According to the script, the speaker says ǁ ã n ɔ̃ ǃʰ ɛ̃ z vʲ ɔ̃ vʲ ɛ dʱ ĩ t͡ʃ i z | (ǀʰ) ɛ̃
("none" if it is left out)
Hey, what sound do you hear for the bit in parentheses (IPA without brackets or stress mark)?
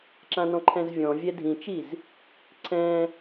ǀʰ